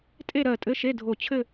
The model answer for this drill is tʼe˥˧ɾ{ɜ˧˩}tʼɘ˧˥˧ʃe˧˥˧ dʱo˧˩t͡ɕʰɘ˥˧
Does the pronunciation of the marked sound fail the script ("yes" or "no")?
no